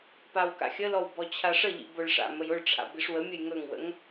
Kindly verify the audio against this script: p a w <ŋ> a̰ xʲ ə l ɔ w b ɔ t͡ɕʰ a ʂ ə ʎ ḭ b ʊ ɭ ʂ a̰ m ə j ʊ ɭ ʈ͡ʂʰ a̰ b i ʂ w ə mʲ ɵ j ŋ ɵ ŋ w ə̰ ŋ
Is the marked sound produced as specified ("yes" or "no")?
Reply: no